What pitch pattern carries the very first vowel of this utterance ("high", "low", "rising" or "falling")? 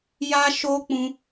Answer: high